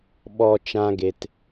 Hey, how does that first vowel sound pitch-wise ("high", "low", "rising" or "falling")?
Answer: low